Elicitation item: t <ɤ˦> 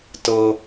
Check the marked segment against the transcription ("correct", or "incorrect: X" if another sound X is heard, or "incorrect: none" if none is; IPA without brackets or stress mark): correct